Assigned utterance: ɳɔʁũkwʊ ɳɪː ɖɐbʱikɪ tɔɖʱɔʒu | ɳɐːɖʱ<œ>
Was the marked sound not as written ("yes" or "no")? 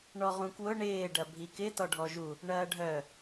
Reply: no